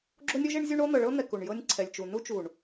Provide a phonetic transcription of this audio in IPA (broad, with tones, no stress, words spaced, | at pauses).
ɡ͡ǁo˦nʲo˦ʒ e˦ɳzʲu˦ɳo˦ n̪ɤ˨ɭɤ˦n̪ɛ˨ ku˨ɳjɤ˦nʲǀʰɛ˨lʲt͡ʃu˨ nu˦t͡ʃu˨ɳ